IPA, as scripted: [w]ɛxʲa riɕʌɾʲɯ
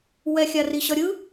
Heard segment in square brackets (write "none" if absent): w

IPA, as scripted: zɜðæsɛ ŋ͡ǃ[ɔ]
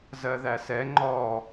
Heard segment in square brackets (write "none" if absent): ɔ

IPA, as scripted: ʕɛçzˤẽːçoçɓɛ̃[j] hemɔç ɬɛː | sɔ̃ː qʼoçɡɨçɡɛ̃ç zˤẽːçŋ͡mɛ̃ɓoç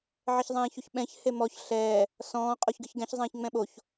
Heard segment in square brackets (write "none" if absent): ç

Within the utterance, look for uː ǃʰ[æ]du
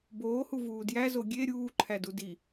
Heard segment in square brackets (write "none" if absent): æ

